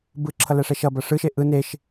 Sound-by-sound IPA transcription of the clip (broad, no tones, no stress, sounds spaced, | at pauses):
b ɯ ǁʰ ʌ l æ ʂ ɛ ʃ ʌ b ʌ ʂ ɯ ʃ e ʔ ɯ n e ʃ